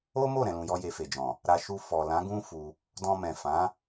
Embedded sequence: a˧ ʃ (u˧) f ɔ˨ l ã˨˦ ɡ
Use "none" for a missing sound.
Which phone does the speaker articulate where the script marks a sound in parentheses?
u˧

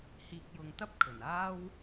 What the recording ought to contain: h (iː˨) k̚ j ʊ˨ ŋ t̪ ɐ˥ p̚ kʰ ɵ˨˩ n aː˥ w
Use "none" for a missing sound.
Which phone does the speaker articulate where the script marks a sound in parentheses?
iː˨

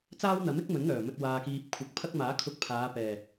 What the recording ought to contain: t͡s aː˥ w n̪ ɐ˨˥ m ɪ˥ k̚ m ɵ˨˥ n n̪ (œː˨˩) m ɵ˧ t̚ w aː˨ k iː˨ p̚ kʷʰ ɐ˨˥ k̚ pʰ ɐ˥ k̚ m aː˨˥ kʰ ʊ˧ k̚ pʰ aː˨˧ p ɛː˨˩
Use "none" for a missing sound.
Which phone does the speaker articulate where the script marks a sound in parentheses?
œː˨˩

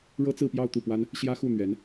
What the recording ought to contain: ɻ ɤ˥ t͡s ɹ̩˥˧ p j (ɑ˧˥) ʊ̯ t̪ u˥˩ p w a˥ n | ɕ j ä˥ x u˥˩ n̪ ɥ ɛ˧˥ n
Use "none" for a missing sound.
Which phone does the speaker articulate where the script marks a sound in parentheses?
ɑ˥˧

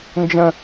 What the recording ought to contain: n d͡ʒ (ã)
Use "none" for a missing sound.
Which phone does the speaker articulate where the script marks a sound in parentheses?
ə̃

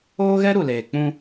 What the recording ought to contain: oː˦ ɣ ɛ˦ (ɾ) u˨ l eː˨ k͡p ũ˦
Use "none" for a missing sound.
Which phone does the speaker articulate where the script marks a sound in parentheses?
ɾ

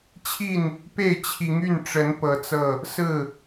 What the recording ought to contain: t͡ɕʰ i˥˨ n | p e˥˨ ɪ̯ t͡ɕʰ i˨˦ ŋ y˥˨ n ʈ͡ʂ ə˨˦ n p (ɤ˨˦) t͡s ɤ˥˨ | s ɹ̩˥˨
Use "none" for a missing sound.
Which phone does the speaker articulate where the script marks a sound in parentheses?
ɤ˨˦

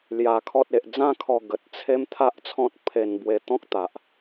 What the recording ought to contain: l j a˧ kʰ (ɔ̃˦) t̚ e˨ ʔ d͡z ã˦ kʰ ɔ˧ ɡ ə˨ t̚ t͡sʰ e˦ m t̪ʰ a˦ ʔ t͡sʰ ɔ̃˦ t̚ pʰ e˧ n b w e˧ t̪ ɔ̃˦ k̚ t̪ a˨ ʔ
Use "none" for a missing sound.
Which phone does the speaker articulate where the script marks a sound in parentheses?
ɔ˦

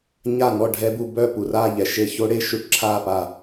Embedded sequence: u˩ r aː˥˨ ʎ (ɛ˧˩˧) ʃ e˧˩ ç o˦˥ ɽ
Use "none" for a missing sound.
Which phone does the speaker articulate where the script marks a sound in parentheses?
ɛ˩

